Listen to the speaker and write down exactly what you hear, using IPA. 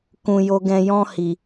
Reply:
kũ˨ jo˨ɡɛ̃˨jɔ̃˧ hi˨

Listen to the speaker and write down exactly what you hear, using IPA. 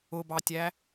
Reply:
ʊbɑtʲæ

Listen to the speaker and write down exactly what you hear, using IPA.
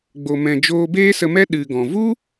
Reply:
ɡ͡bo˨mɛ̃˨ d͡ʒoː˧beː˦sə˧mɛ˦ ɗɨ˨ɡɔ̃˨ vu˦

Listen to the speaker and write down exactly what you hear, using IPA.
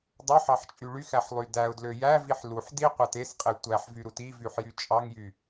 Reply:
dˤøħɑħt͡ʃʼy ɭyxæħlˠy dæʊ̯dlø jæviħ luħ diqʷɑt esqʼe tʷæħvyɾut ivyħjy t͡ʃʼɑŋjy

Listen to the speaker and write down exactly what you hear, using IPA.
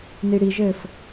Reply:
niɽiʒɘːf

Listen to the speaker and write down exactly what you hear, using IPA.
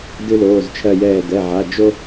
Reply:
dɨ˦loː˩˧˩zt͡ʃʰɜ˧˩jɛː˧˩ dɛ˩˧˩ʕa˩˧˩ d͡ʒo˦

